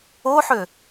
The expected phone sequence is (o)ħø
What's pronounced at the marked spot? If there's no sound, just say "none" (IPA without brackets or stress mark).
o